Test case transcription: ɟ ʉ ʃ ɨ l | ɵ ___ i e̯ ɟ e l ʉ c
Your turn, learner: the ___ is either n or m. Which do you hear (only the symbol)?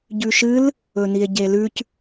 n